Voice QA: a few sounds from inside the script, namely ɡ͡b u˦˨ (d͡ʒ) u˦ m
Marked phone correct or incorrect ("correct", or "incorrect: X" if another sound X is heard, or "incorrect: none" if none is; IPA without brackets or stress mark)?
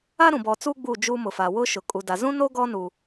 correct